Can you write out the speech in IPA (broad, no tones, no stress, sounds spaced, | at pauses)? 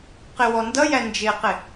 q ɪ w ɔ n d ʌ j æ n d͡ʒ ɪ q ɪ